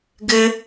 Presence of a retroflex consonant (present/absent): absent